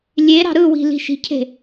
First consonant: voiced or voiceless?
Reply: voiced